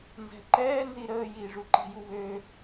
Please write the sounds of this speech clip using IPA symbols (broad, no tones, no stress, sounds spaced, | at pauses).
n z ɛ̤ ǃ ɛː n z i ɾ əː j iː ʐ u ǃ i̤ j u β ø